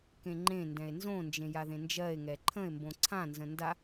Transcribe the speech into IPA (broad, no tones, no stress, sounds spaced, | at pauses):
k ẽ ŋ͡ǃ ẽ n d ɛ̃ e̯ n z õ n d͡ʒ ẽ j a ð ẽ n d͡ʒ ɜ e̯ ŋ ɛ ǃʰ ə̃ e̯ m b õ ǀʰ ã n z ə̃ n d a